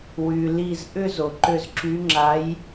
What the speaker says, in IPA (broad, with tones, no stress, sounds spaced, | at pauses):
w y˩ l i˧˩ z ʔ ʏ˥˧ z o˩ ǃ ʏ˧˩ z ǁ y˨˦ ŋ͡ǁ a˨˦ j